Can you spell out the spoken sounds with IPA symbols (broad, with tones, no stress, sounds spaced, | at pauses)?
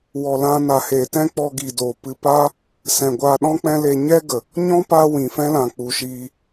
w ɔ˨ l ã˧ n a˨ h eː˨ t ɛ̃˦ k͡p ɔ˧ ɡ i˨ d oː˨ p ɨ˧ p aː˦ | s ɛ̃˨ ɡʷ aː˧ ɗ ɔ̃˦ k͡p ɛ̃˦ l e˧ ɲ ɛ˦ ɡ ə˨ | ɲ ɔ̃˦ p aː˦ w ĩ˨ f ɛ̃˦ l ã˨ k͡p u˨ ʃ iː˧